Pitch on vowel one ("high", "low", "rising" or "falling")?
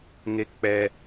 high